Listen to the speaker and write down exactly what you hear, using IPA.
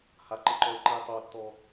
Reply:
haǃɯǃɔɪ̯ǃɯj tˤotːɔ

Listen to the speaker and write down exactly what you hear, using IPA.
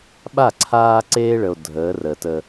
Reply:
ɓa˦˨ǀʰaː˦ǀeː˦ɭə˨o̯ dʱəː˨˦ rəː˨tə˦

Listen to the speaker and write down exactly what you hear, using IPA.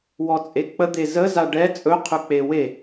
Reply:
wɔt͡sʼek͡pə d̪ezə zaɖɛ t͡sʼɵ qʰɵk͡pewe

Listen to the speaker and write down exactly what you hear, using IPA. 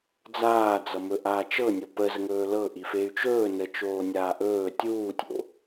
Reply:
d͡zaːd͡zʌ mɵʔaːt͡ʃɤ nʲopəzəŋɵː lɤʔi fey̯t͡ʃɵː nət͡ʃoːnʲaː ʔɵː tʲuːtʲo̰

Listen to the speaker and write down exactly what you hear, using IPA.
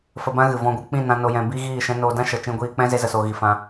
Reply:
fə˧bã˦ɣɨ˨ vɔ̃˧ɡʷɨ˧ k͡pĩ˦˨nã˧ no˧jɛ̃˧ bi˦ɣiː˦˨ ʃɛ̃˧no˧dã˦ʃə˨ t͡ʃĩ˧ɡʷiː˧k͡pɛ̃˦ ze˦zə˧so˧ ɣi˧fã˦

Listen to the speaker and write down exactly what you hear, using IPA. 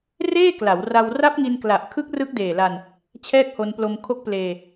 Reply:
reː˥˩kla˩˦wra˧w ra˦˥p̚ŋi˧nkla˨˩ʔkʰɯ˦˥k̚ rɯ˦˥k̚deː˨˩la˧n | t͡ɕʰɛː˥˩k̚ho˧nplo˧m kʰo˦˥k̚pleː˧

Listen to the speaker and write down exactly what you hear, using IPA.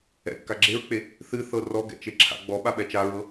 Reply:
ɛ̰kːa ɡ͡ǁeɹk͡pe | θɨθɤ rɔɡɛ̰t͡ʃeǁʰa̰ ɡ͡bɔɓaɓɛ t͡ʃaɹɤ

